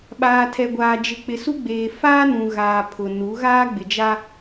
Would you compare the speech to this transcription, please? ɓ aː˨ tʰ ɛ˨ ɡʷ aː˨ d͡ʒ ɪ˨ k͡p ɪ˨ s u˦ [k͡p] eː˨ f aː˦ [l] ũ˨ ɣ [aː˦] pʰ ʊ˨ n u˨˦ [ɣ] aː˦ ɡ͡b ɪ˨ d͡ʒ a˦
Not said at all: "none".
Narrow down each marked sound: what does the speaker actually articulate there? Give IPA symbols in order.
ɡ͡b, n, aː˨, ɣ

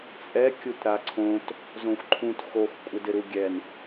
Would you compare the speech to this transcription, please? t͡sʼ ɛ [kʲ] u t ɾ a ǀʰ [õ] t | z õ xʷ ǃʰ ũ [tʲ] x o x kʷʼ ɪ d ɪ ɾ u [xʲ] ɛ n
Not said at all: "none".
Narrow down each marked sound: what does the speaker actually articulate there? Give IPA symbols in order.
kʲ, õ, t, ɡʲ

